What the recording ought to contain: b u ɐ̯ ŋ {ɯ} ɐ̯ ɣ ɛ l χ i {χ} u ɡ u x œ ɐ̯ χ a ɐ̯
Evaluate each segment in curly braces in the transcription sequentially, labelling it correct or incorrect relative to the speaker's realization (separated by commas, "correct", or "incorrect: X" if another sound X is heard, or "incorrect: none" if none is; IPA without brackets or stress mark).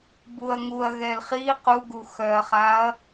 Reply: incorrect: u, incorrect: q